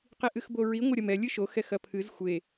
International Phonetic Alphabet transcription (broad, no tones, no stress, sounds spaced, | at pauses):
q i ʔ ɨ x b o ɹ i ŋʷ ɐ ɾʲ ɐ m ɛ lʲ ɨ ʃ o x ɛ x ɐ pʰ ɨ z xʷ e